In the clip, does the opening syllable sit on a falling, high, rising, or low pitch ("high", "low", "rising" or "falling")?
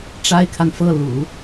high